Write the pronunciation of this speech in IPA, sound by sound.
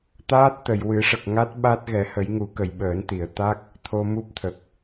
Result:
t̪ aː˦˥ t̚ t̪ ə˨˩˨ j w ɨ˨˩˦ ʂ ə˨˩ k̚ ŋ a˦˥ t̚ ɓ a˦˥ t̚ ɣ ɛ˨˩˦ h ə˨˩˦ j ŋ u˨˩˦ k ə˨˩˨ j ɓ əː˨˩˦ n t̪ i˨˩˨ ə̯ t̪ a˦˥ k̚ | t̪ʰ o˧ m u˦˥ p̚ t̪ʰ ə˨˩ k̚

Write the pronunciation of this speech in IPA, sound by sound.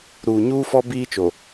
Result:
ɾ uː˨ ɲ uː˦ f ɔ˦ b iː˦ t͡ʃ o˨

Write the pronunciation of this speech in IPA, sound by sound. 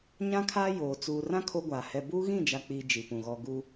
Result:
ɲ ã˦ kʰ aː˦ j oː˨ t͡s uː˨ r ã˦ kʰ o˦ ɡʷ aː˨ h ɛ˦ b uː˦ ɣ ĩ˦˨ d͡ʒ a˨ k͡p iː˨ d͡ʒ i˨ p ũ˨ ɣ ɔ˨ ɡ u˦

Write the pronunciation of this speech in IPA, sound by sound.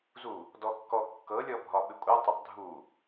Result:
z u | d ɔ kː ɔ kː ɤ lʲ ɔ bʱ ɒ ɓ ɪ kʷʼ ə tˤ ə tˤ dʱ u

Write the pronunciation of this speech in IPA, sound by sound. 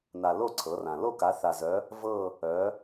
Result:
n a˩ l o˦˨ ǀʰ ɤ˩˧ r ã˩ l o˦˨ k a˩˧ θ a˩ z œ˩˧ | v ɤ˦˨ | œ˩˧

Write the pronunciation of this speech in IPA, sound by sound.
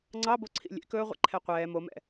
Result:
ŋ͡ǀ ɑ b o ǀʰ ḭ lʲ ḛ k ɵː ʁʷ ḛ ǃʰ ɛ qʷ ɛː m o m ɛ̰

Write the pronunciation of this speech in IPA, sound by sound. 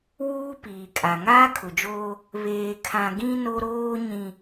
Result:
w uː˦ p iː˨ kʼ a˨ ŋ aː˦ kʰ ʊ˨ d͡ʒ oː˦ | β eː˨ kʰ ã˨ ɡ ĩ˦ n o˦ ɾ oː˦ ɲ ĩ˨

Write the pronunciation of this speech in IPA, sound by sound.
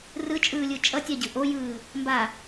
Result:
r ɯ t͡ʃʼ ɯː lʲ ɯ t͡ʃʼ ʌ tʲ a ɟ ɯ ʔ o j ɯː | m b a

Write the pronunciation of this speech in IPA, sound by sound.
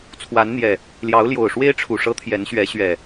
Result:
t͡sʰ w a˨˦ n n̪ j ɛ˨˩ | l j ɑ˨˦ ʊ̯ l j o˨˩ ʊ̯ ʂ w e˦ ɪ̯ ʈ͡ʂʰ u˨˩ ʂ ɤ˨˦ t̪ʰ j ɛ˨˦ n ɕ ɥ ɛ˨˦ ɕ ɥ ɛ˨˩

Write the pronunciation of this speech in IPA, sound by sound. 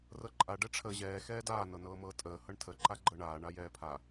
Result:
r ɤ ǃʼ a ɖ ɛ ʈ͡ʂʰ əː ʑ ɛː x ɛː d aː n ɤ n ɤː m ɤː tʼ əː h ɤ ɳ tʰ ə ǃ a ɡ͡ǃ ɤ ɳ aː ɳ a j ɛː pʰ a

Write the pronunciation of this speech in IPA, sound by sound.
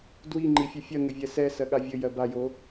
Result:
d w i ŋ͡ǃ i fʲ e fʲ ɜ ŋ ɘ vʲ ɛ s ɛ s ɜ ɠ a vʲ ɘ j ɜ b a j o

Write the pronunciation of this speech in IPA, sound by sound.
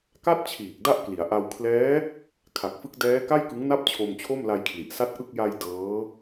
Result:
k a˥˩ t̚ t͡ɕʰ iː˨˩ k̚ d a˥˩ ʔ k l i˩˦ a̯ ʔ a˧ w kʰ l ɛː˦˥ | kʰ a˨˩ k̚ f ɯ˦˥ k̚ d ɛː˦˥ k a˥˩ j k ɯ˦˥ ŋ n a˥˩ p̚ t͡ɕʰ o˧ m t͡ɕʰ o˥˩ m l a˧ j kʰ l i˨˩ ʔ s a˥˩ t̚ ʔ ɯ˥˩ k̚ j a˧ j d ɤː˦˥

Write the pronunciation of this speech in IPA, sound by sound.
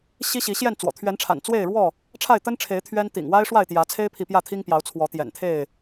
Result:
ɕ i˦ ɕ i˨˦ ɕ j ɛ˥˨ n t͡s w ɔ̰˨˩ t̪ʰ ɥ ɛ˨˦ n ʈ͡ʂʰ a̰˨˩ n t͡s w e˥˨ ɪ̯ ɻ w ɔ˥˨ | ʈ͡ʂʰ a˥˨ ɪ̯ t̪ ə˦ n ʈ͡ʂʰ e˨˦ ɪ̯ t̪ʰ ɥ ɛ˦ n t̪ ḭ˨˩ ŋ w a˦ ɪ̯ ʂ w a˥˨ ɪ̯ t̪ j ä˨˦ t͡sʰ e˦ ɪ̯ pʰ i˨ p j ä˥˨ t̪ʰ i˦ ŋ p j ɑ˨˦ ʊ̯ t͡sʰ w ɔ˨˦ t̪ j ɛ̰˨˩ n t̪ʰ e˥˨ ɪ̯

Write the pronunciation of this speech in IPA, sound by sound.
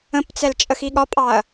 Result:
ə̃ p t͡s ɛ l t͡ʃʼ ə x i ɠ ɒ pʼ ɑ ɐ̯

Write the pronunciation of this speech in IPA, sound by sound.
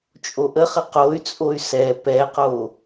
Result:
t͡ʃʼ o ʔ ə χ ə q o y̯ t͡sʼ o y̯ s ɛ p ɛ q o

